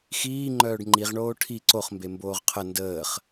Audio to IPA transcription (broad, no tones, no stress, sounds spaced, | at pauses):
x iː ŋ͡ǃ œː ɖ ŋ͡ǃ i ʁ ɳ oː ʈʰ i ǀ o χ m b e m b oː ʁ qʰ ə n d əː χ